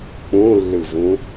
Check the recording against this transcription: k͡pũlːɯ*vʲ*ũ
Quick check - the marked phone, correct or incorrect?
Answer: incorrect